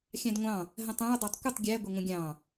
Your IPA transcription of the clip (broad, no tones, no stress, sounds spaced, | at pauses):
xʲ ɑ̃ d ŋʷ ɑ̃ | ɦ ə̃ tˤ æ̃ u̯ dˤ æ tˤ kʷ ə tˤ ɡʲ æ ɡʷ ɪ ŋʷ ə̃ ɡʲ ɑ̃